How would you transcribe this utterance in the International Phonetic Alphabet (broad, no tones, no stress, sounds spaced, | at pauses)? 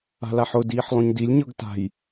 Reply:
a̤ l a ħ ʊ d iː ħ lˠ õ ɲ d i lʲ ɲ ɤ ɡ t a̤ j